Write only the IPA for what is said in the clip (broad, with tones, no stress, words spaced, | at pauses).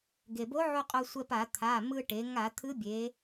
ɡe˩bo˧˥ʕu˧ qʼo˧sʷɛ˧pa˧˩˧ t̪ʰa˩˧˩ mɯ˧ʈe˩˧ ŋa˧˩˧ t̪ʰɯ˧˥bʲe˩˧